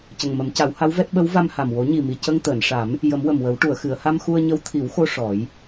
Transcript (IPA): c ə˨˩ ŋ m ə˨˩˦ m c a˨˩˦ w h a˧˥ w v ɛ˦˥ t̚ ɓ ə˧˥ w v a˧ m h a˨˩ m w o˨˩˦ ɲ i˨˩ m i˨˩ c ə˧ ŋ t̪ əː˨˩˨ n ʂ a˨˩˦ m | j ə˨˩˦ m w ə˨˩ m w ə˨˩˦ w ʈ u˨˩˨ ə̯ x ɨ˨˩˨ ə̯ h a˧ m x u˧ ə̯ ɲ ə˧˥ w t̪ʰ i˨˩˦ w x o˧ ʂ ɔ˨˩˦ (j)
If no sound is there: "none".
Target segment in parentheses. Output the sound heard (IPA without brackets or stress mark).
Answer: j